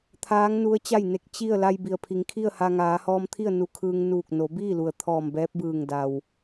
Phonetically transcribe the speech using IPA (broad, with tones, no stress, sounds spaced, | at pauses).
t̪ʰ aː˧˥ ŋ n u˧˥ ə̯ t͡ɕ a˥˨ j n e˧ k̚ t͡ɕ i˥˨ ə̯ l a˧ j b i˩ ə̯ pʰ i˩˧ ŋ kʰ i˥˨ ə̯ h a˧ ŋ aː˩˧ h ɔː˧ m t̪ʰ i˥˨ ə̯ n u˧ kʰ ɯː˧ ŋ n uː˧˩ k̚ n o˩˧ b iː˥˨ l u˩ ə̯ t̪ʰ ɔː˧˩ m b ɛː˧˥ p̚ b ɯː˧˩ ŋ d a˩ w